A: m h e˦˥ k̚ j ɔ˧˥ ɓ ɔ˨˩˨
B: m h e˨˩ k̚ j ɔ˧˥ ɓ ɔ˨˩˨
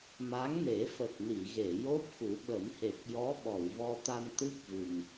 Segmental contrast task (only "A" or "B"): B